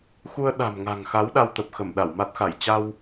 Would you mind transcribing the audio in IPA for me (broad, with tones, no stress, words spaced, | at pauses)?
xu˧ə̯ɗa̤˨˩mŋa̤˨˩ŋ xa˨˦w ɗa˧wt̪ə˨˩p̚ xə˧˩mɗa˧˩wma˦˥t̚xa˧˩j t͡ɕa˧w